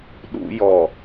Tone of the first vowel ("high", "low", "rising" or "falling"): high